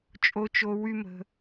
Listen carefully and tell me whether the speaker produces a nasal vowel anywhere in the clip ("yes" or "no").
no